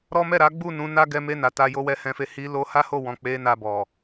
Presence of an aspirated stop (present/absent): absent